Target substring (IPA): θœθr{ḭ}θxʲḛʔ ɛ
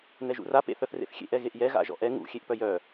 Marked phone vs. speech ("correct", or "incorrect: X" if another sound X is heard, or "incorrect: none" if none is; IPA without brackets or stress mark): incorrect: ḛ